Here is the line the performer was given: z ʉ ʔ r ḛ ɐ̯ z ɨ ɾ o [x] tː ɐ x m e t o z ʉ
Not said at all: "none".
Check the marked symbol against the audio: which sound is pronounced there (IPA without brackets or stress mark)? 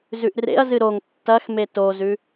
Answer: ŋ